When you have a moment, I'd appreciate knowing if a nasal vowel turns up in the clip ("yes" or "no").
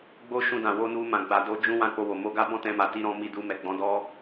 yes